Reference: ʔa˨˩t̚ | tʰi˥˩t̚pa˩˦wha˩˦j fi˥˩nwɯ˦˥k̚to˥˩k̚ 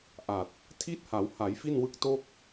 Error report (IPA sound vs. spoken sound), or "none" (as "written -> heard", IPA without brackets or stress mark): p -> h